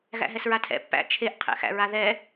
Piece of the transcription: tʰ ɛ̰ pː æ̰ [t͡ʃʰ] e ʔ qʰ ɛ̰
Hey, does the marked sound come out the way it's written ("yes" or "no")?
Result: yes